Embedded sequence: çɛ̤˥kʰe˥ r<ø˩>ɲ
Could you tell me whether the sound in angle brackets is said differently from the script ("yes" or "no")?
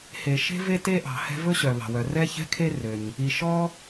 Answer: no